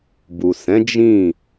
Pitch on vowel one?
low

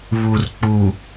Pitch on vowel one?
low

